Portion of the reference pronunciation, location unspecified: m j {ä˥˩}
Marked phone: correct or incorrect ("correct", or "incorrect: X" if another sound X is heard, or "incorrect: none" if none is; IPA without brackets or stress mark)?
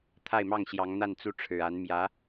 incorrect: ä˧˥